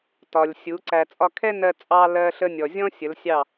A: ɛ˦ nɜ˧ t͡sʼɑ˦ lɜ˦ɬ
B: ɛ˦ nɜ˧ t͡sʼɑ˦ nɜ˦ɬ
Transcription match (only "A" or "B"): A